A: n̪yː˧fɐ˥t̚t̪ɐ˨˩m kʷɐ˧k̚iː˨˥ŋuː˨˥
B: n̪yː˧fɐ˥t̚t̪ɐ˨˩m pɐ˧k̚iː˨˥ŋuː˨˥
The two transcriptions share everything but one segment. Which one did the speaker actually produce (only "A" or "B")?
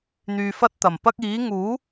B